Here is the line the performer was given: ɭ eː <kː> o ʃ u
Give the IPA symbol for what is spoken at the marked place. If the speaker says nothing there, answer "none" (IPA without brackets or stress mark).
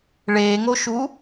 ŋ